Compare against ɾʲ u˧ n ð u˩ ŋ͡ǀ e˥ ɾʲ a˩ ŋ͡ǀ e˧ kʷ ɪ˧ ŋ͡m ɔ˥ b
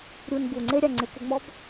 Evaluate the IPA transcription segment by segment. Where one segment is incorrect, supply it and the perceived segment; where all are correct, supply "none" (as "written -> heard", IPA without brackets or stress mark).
ð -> b